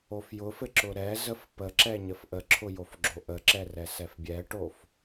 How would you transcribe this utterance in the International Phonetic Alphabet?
o f j ʊ f ɘ ǁ ʊ ɾ ɛ z ə f p ə ǁ ɛ ɲ ə f ʔ ə ǁʰ ʊ j o f ɡ͡ǁ o ʔ ə ǁ ɛ r ɛ s ɛ f bʲ ɛ ʈ o f

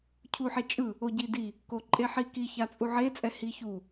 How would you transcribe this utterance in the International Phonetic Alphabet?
cʰ u ħ e t͡ʃʼ ɯ | o ɟ i d i | k o ǃʼ e ħ i k i ç a t͡sʼ u ʕ e t͡sʼ ɛ h i ç u

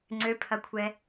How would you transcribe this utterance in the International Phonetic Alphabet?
ŋ͡ǀ ø pʰ ɐ kʷʰ ɛ

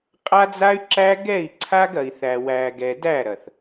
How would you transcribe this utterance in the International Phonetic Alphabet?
qʼ a˦ d͡z a˦ y̯ ǁ æ˦ ɡ ɛ˦˨ i̯ ǀʰ a˦ ɡ ɐ˨ i̯ θ æ˨ w æ˨ ɡ ɛ˨ d æ˦˨ ɾ ɐ˨ θ

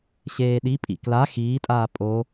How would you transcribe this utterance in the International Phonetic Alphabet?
ɕ eː ɗ i pʼ ḭ k l a x iː tʼ aː pʼ o

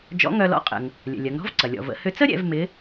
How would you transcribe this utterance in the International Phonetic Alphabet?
d͡ʒ ɔ̰˧˥ ŋ œ˧ l ɔ̰˧˥ qʼ ə̰˩ ŋ | lʲ ə̰˩ lʲ ɐ˩˧ ŋ ɾ ɔ̤˥ v ǀ ɐ˩ lʲ ɔ̰˩ v ə̰˩˧ h ʏ˧ t͡s ə˥ ɾʲ ɛ̰˩˧ v m ɪ˧˥

